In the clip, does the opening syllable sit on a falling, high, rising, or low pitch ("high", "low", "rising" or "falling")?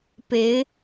rising